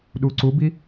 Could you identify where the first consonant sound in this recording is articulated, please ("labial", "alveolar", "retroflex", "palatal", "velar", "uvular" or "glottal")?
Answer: alveolar